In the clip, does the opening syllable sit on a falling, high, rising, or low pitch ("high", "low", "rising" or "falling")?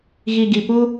low